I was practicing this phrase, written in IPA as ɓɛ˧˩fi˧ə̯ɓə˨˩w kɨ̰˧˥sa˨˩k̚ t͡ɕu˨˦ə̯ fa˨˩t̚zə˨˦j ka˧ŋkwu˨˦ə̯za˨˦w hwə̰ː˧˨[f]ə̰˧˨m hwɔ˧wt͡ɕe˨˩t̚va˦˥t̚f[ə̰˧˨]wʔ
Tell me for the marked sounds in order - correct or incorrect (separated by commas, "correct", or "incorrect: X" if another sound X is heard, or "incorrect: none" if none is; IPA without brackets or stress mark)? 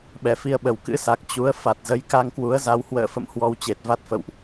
correct, correct